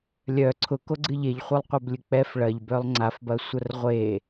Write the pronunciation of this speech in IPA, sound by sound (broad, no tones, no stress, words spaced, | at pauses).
lʲœ ǀʰʊkoɡ͡ǀɨ ʎeʎχʷœlˠqʷɐblʲɨ k͡pɛf ɭɐʎbœlˠ ŋ͡ǀafbɐsʷɐr ʁʷe